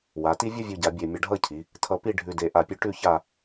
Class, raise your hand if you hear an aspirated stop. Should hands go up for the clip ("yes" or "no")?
yes